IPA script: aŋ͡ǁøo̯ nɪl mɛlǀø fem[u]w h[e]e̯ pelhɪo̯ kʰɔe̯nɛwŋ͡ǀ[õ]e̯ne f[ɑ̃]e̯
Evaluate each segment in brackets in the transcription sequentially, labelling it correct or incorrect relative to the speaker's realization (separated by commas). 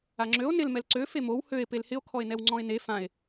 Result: incorrect, incorrect, incorrect, incorrect